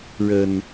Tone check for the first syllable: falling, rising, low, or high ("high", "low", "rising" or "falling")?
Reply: low